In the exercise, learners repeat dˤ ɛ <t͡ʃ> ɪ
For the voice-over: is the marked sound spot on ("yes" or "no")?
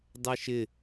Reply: no